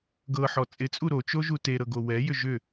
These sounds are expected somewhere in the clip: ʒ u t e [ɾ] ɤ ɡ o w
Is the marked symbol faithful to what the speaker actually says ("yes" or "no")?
yes